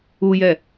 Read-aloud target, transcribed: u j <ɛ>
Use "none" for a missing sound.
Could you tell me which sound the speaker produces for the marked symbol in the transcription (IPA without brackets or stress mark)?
ɛ